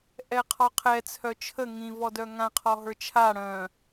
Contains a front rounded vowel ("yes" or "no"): yes